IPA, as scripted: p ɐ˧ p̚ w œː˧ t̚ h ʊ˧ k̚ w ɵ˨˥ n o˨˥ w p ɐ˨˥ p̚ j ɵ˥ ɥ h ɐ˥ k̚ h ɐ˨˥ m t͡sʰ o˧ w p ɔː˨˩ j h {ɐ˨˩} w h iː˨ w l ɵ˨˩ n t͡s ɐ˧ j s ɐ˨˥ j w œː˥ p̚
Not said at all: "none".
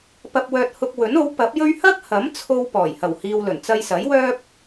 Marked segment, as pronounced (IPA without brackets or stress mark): ɐ˨˩